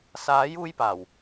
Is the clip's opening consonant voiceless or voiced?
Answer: voiceless